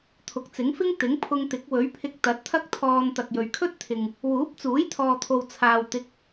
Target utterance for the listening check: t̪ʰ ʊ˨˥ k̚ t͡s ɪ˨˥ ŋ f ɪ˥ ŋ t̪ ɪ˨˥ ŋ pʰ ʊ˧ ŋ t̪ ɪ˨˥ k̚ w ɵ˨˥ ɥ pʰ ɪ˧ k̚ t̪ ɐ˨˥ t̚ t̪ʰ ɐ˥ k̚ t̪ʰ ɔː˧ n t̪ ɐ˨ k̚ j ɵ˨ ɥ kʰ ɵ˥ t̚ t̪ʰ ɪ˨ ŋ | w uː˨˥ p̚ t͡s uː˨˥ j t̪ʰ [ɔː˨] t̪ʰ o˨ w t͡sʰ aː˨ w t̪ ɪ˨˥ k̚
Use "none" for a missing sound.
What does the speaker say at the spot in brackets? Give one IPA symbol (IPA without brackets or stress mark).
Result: ɔː˨